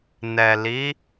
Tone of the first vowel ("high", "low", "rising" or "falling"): low